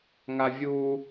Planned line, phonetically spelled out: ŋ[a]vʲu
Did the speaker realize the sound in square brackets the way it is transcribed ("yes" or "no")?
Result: yes